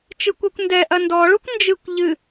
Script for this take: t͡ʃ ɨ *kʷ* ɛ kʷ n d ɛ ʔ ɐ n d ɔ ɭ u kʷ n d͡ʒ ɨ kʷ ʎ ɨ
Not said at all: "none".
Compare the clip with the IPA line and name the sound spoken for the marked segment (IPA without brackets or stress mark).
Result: kʷ